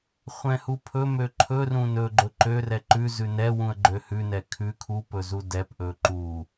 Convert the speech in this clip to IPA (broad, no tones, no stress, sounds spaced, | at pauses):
χʷ ɛ̃ h u pʰ ɵ m ø ǃʰ ɵ r ũ n ɵ ɡ͡ǃ ɵ ǃ ø r ɛ ǃ ʉ z ʉ n ɛ w ũ ə̯ ɡ͡ǃ ø h ʉ n ɛ kʰ ʉ kʰ u p ɵ z u d ɛ p ʔ ɵ ǃ u